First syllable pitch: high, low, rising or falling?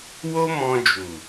high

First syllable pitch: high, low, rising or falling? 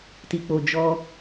low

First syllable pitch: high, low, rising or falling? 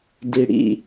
low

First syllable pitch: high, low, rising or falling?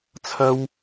high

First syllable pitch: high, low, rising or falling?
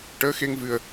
rising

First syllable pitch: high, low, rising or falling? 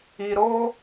low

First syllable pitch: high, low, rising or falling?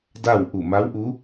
falling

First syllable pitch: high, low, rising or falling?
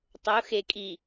rising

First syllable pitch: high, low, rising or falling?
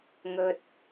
low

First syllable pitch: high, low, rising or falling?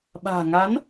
low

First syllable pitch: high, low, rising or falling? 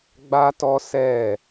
high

